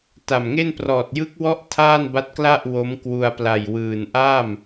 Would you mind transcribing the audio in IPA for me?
t a˨˩ m ŋ e˥˩ n p r ɔː˨˩ t̚ j ɯ˦˥ k̚ w ɔ˦˥ ʔ tʰ aː˥˩ n b a˦˥ t̚ k l a˥˩ ʔ w o˦˥ m k w u˧ a̯ p l a˨˩ j w ɯː˨˩ n ʔ aː˥˩ m

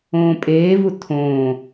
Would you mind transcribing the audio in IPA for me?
õː pʼ eː v u tʰ õː

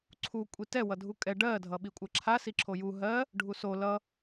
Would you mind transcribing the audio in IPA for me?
ǀʰ u kʷʼ i t ɛ w ʌ dʱ u kʼ ɛ ɖ ɜ dʱ ʌ ɓ i kʷʼ ɜ ǁʰ a s i ǁʰ o j u ɦ ɜ | ɖʱ u s o l ʌ

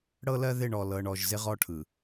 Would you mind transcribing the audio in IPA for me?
ɽ ɤ˦ l ɜ˦ ð ɪ˦˨ ɳ ɔ˨ l ɤ˨ ɳ ɔ˨ ʒ z ɪ˦ ʁ ɔ˦ ʈʰ ɯ˨

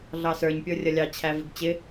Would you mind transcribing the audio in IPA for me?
ɮ ɑ s ə˞ ɲ pʲ ə˞ rʲ ʌ lʲ ɑ t͡ɕʰ æ v ɪ ɡ t͡ɕ ɪ

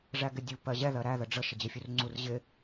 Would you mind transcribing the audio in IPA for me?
ʐ æ ɡ ɪ dʲ u p ɜ ʑ ɛ ð ɜ ɾ æ ð ə ɖ͡ʐ ə ʃ ɪ d͡ʑ ɪ fʲ u r ŋ͡ǀ u r ʑ ɪ

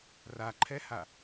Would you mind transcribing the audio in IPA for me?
r a ǃʰ ɛ h a

